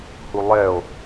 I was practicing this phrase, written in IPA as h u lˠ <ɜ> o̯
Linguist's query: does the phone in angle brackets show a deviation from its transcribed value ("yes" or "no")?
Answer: yes